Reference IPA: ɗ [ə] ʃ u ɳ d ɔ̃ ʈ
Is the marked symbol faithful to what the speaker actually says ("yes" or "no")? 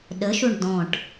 yes